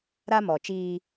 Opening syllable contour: high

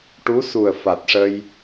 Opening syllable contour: rising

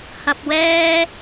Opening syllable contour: low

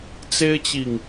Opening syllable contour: high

